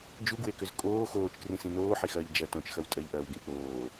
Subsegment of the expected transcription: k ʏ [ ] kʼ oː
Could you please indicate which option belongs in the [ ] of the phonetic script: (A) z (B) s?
A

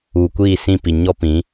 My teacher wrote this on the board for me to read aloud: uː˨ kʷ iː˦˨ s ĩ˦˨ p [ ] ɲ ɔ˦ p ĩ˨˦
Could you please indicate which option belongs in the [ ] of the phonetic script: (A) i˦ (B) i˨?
B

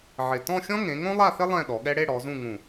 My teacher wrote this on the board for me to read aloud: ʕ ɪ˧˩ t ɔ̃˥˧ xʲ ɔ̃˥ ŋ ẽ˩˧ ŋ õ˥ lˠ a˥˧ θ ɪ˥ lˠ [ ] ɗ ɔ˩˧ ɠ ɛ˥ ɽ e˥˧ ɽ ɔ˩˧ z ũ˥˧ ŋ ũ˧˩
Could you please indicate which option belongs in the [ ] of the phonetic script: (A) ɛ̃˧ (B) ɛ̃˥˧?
B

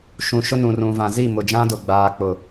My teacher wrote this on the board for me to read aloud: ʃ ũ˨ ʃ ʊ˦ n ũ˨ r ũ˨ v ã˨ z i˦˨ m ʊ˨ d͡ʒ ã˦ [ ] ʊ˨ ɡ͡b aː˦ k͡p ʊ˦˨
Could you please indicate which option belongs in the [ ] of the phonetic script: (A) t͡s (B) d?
B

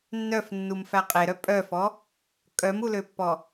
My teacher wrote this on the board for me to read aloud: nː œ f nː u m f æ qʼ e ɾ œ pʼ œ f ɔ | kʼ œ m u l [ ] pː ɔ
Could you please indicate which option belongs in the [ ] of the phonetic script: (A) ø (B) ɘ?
A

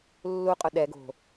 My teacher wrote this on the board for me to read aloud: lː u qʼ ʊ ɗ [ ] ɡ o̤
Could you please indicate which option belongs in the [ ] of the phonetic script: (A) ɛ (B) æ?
A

